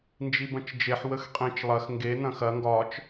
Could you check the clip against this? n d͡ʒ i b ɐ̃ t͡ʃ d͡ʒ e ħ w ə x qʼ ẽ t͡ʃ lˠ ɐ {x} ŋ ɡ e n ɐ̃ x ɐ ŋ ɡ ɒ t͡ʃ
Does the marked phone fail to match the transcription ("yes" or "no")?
no